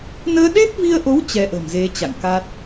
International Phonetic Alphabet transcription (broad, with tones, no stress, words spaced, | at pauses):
nəː˧ɗe˦˥p̚vi˧ə̯ʔo˨˦w t͡ɕɛ˧ʔə̤˨˩mze˨˦ t͡ɕa̰˧˨ŋka˦˥t̚